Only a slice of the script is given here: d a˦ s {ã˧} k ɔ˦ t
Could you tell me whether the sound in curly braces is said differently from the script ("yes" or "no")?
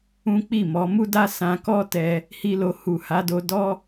no